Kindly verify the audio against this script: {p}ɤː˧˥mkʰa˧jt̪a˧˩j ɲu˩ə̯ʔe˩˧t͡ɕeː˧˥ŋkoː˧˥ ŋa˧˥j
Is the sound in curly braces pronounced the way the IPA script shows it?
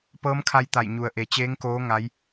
yes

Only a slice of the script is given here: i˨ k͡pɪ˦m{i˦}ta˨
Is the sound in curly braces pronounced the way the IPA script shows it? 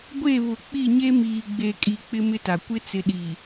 no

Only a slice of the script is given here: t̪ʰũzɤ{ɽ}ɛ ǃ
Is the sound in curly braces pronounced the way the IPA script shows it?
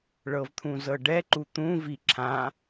no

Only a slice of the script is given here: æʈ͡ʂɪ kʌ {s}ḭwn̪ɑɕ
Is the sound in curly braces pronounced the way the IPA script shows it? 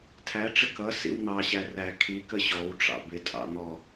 yes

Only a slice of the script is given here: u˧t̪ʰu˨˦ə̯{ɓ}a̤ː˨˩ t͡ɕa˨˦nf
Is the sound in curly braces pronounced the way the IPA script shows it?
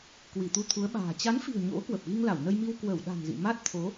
yes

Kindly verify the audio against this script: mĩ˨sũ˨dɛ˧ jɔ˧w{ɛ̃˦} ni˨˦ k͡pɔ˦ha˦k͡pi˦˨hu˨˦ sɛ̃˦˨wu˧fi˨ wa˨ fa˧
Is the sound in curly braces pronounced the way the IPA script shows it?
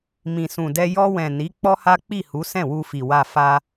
no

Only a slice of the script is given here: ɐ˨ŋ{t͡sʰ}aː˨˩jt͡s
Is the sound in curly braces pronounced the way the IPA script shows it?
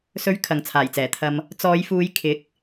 yes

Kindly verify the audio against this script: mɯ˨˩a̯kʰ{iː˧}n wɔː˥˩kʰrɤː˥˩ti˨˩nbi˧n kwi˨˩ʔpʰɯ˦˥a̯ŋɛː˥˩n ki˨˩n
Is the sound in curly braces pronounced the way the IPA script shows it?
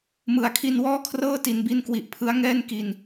no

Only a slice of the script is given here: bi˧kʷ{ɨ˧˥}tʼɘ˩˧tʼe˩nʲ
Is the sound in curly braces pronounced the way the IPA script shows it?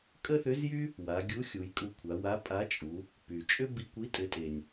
no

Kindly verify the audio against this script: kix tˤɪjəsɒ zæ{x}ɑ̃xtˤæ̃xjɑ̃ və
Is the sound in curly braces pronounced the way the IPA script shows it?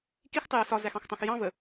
yes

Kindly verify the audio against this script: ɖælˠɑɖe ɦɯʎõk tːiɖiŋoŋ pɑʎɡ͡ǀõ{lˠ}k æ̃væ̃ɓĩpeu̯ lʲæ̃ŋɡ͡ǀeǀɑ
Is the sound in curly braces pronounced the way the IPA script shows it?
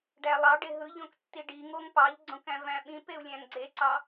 no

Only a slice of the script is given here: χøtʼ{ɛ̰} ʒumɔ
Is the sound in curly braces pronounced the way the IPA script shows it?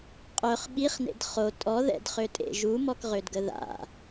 no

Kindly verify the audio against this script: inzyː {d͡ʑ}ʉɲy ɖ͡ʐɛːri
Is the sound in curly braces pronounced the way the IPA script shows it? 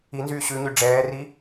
no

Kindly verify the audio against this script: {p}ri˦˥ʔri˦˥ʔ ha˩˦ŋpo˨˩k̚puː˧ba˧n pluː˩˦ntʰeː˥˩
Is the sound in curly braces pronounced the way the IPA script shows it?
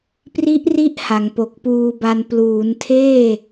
yes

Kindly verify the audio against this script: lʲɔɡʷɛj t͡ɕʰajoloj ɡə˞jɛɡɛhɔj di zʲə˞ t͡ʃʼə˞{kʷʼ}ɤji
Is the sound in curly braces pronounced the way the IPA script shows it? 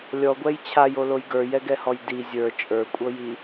yes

